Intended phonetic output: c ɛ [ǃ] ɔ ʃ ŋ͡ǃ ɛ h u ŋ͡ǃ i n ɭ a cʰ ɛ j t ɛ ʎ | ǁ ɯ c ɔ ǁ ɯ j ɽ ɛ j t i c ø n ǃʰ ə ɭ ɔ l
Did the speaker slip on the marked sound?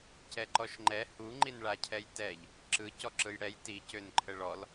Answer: no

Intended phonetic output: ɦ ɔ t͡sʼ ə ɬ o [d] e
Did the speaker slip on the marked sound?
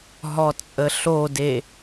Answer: no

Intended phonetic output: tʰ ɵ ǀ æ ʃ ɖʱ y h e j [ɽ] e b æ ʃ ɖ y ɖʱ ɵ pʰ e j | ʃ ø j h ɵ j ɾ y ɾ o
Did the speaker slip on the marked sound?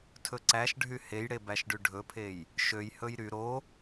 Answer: no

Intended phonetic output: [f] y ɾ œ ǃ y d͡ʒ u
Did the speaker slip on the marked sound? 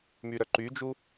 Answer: yes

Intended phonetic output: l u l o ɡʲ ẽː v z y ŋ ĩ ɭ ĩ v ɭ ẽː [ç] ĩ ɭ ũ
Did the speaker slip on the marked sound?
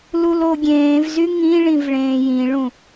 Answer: yes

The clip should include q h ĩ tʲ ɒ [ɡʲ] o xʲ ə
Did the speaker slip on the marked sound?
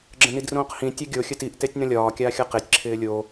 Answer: no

